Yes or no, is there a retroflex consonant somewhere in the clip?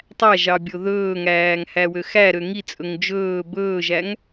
no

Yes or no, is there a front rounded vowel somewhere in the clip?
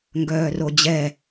yes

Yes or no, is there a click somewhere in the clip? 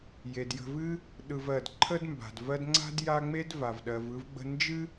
yes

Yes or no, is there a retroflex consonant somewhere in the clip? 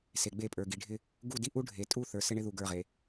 yes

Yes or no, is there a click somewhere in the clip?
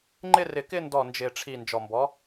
yes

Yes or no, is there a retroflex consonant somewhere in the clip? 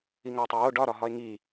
yes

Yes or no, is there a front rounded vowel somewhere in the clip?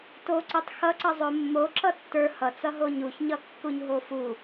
no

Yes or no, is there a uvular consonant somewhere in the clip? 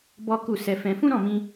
no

